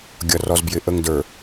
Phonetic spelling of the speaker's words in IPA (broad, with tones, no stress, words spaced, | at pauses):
ɡʲʌ˨rɔ˨zbjɪ˨ ʔə˨ŋdə˞˨